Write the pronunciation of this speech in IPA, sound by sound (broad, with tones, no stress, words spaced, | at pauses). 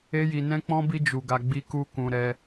e˦ji˧nɛ̃˦k͡pɔ̃˦ bi˦d͡ʒu˧ɡa˧ ɡ͡bi˦ku˦ kũ˧ ɾɛ˦